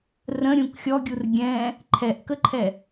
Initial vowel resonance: nasal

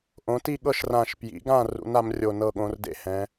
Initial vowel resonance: nasal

